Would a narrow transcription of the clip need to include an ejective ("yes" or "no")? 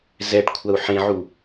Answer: no